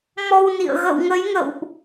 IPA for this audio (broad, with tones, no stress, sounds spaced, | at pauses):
m ɔ˧ w n ḭ˧˨ ə̯ ɣ ə̰˧˨ w ŋ ə˨˦ j ŋ ə̰˧˨ w ʔ